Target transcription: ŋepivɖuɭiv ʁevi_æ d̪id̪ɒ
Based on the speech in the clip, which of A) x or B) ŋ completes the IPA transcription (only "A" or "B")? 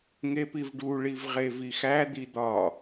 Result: A